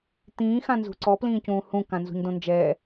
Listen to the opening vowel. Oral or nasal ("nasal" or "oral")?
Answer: nasal